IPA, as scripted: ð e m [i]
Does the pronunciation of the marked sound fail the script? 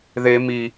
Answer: no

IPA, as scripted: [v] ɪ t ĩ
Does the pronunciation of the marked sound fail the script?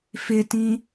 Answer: yes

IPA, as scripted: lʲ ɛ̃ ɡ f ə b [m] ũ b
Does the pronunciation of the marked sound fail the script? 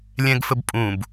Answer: yes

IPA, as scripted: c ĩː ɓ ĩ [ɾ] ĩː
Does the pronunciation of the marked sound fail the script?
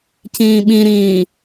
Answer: no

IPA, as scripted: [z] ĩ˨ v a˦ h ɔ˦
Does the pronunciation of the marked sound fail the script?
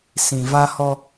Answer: yes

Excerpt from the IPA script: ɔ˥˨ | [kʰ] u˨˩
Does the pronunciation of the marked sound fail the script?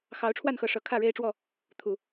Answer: yes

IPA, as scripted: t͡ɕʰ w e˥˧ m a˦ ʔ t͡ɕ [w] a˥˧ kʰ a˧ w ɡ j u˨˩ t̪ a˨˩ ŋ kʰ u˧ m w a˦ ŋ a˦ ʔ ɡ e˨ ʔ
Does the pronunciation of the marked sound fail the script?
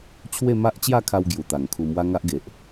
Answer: yes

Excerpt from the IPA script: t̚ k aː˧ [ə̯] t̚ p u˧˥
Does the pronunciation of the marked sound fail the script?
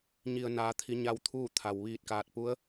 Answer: yes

